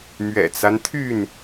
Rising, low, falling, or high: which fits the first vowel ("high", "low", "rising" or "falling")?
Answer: low